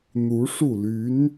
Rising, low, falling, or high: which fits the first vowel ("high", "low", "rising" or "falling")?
rising